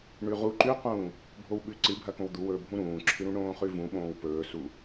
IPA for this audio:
ɳʉʁu ǃʉqũː | bʱowɓʉ ǀɨbʱɐkõw d̪uwɵː bʱũɾũːǁʰɨɾũ ɳõːχʉvũɓõːw pɵːsu

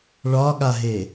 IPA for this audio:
ɭɒɠaɦe

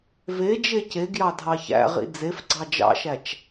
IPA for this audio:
ve d͡ʒeceɡjɑ dʱɑçæ̰ʁḭ d͡zefɡ͡ǀɑ d͡ʒɑ̰ʃæt͡ʃ

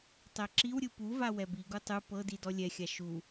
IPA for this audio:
tˤɛǁiwɾʲɯ puva wɛbiɡu tˤɯ pɤdi dɔlʲɛxʲa ʃu

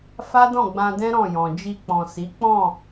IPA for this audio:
fa˦ dɔ̃˦˨ɡ͡bã˧dɛ̃˦ ɾɔ̃˦˨jɔ̃˨ d͡ʒi˧k͡pɔ̃˨si˨˦k͡pɔ̃˦˨

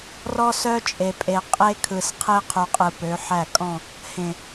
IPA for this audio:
rɔ˦sœ˦ t͡ʃʼe˨pʼe˨ qʼe˦kʰɯ˨s qʰe˦qʰu˨qʼɯ˨ pø˨˦ħæ˦˨kʼɔ̃˦˨ | hẽ˨

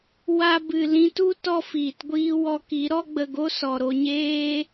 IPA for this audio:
wa˧bɨ˨ lĩ˧tu˦ tɔ˦fiː˨tɡʷiː˦ wɔ˧ki˨˦ ɾɔ˦ɡ͡bə˧ɡo˦ sɔ˨ɾo˧ɲeː˦

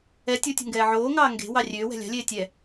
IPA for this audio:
ɛ tʲotʲo̤ŋɡɛː ʕoːŋɑː ŋɡe̤wɑ rʲøːwɛ̤ lʲɑ̤lʲeː tʲɛ

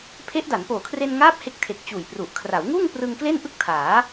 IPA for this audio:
pʰe˦˥ʔda˩˦n poː˨˩kʰre˧nŋaː˦˥p̚ he˦˥k̚tʰe˨˩k̚ t͡ɕuː˨˩jpru˨˩ʔ kʰra˩˦wŋuː˥˩ŋ prɯ˧ŋ kle˥˩nʔɯ˥˩k̚tʰaː˩˦

